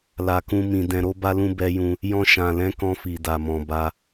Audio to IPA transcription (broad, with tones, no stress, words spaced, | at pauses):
la˨kũ˧ mĩ˨ dɛ̃˨ɾo˧ba˧lũ˧ bɛ˧jũ˧ | jɔ̃˧ʃã˨lɛ̃˨˦kɔ̃˧ fi˨da˨mɔ̃˨ ba˧